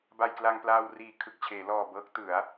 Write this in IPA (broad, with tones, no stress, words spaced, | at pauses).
ba˧jkla˧ŋplaː˧w riː˨˩ kʰɯ˨˩k̚t͡ɕʰeː˩˦lɔː˨˩bɤː˦˥k̚ tɯ˩˦a̯